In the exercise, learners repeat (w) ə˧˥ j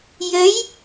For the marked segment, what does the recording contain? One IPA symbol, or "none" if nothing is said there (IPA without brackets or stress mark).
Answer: j